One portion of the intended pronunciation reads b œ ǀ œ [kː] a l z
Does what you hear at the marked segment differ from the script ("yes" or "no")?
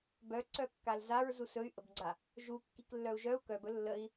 no